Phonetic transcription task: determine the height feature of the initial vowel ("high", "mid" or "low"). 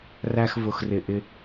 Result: low